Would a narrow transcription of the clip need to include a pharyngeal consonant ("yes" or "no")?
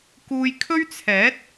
no